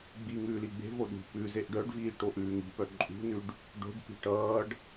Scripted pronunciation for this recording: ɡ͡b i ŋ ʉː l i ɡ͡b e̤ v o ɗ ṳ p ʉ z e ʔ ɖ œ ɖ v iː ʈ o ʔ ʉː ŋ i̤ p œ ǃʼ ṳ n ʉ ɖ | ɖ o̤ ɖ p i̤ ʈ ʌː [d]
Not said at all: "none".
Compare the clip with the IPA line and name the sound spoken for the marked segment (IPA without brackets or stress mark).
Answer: ɖ